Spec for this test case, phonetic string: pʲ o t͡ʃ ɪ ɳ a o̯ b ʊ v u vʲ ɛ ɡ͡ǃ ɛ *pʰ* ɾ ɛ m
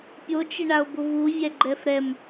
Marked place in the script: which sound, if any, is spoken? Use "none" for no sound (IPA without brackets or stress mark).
f